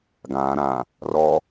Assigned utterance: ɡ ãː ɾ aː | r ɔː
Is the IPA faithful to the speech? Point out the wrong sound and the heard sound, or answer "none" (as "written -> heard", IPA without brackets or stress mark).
aː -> ãː